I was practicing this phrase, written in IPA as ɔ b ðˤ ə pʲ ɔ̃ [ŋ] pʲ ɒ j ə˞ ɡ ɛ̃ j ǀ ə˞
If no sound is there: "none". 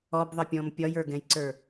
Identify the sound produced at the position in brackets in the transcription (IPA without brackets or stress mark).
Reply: m